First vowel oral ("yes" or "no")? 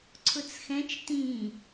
yes